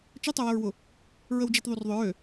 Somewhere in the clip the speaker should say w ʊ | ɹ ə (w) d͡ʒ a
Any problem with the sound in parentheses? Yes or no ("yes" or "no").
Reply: no